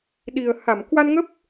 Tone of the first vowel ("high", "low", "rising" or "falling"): low